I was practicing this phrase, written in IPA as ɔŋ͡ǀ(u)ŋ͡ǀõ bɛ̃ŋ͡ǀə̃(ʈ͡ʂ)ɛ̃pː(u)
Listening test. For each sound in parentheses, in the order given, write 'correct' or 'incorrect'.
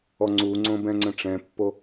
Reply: correct, correct, incorrect

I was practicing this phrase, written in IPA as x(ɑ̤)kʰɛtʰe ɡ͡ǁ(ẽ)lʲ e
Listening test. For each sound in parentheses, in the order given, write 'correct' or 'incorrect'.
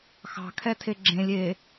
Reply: correct, correct

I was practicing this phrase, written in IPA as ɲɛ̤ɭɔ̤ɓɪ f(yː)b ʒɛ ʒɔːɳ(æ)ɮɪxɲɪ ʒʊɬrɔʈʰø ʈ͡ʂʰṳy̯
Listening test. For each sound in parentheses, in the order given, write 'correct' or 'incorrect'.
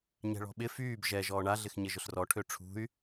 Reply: correct, incorrect

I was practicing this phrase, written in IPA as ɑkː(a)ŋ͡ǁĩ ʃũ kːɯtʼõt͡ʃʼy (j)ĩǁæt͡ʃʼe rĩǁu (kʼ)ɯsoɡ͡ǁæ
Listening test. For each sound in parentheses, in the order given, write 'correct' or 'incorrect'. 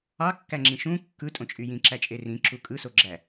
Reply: incorrect, correct, correct

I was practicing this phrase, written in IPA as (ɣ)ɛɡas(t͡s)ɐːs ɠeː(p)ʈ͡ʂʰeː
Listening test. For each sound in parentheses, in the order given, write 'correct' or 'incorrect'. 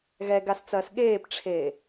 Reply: correct, correct, correct

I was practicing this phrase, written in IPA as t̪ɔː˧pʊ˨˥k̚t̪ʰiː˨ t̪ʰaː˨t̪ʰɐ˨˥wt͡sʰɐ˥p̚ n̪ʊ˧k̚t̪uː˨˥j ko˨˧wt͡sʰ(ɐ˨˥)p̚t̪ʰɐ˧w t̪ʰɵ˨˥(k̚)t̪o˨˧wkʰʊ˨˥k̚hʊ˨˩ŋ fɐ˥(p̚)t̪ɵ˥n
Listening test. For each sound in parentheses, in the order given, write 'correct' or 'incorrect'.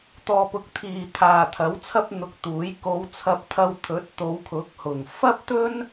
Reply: incorrect, incorrect, correct

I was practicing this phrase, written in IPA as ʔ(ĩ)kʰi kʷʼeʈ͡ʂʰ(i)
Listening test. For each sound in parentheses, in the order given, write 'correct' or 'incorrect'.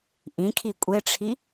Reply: correct, correct

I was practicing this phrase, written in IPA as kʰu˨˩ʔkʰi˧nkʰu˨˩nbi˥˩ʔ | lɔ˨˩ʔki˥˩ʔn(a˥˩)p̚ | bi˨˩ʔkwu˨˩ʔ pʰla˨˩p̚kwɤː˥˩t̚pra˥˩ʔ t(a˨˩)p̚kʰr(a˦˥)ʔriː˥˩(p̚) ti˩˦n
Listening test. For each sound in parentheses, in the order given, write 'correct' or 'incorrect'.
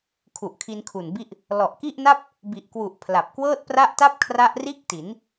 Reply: correct, incorrect, correct, incorrect

